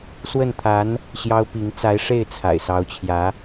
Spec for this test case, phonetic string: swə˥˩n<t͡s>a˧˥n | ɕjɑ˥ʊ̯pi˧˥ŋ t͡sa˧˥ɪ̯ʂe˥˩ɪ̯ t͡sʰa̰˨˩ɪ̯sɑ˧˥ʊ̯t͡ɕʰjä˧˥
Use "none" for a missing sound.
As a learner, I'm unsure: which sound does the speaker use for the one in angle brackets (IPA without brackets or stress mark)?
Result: t̪ʰ